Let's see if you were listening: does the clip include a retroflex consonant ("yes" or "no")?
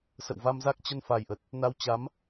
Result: no